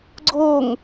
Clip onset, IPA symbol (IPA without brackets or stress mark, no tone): ɡ͡ǀ